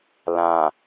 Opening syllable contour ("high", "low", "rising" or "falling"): low